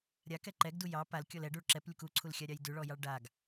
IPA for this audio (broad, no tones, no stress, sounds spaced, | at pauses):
ɾʲ a k ɛ ǃ ɛ ɡ d u j ɑ p a l kʲ ɔ l ɛ ɖ u ɭ ǁ ɛ p lʲ u k u ǀʰ u l xʲ a ɾʲ ɑ j d ʉ ɭ ɔ j ɑ ɭ ɖ a ɡ